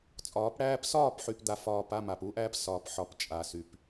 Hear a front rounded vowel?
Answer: yes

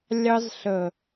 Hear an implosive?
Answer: no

